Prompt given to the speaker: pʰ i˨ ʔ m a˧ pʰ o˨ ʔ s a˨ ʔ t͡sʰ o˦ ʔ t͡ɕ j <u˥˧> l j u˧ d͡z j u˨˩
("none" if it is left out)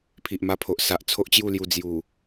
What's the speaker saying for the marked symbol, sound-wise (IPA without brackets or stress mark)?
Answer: u˥˧